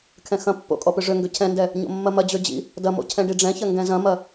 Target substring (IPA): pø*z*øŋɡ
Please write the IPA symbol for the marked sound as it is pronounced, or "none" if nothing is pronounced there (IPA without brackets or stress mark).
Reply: ʐ